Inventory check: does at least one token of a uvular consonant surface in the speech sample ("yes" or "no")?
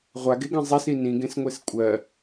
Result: yes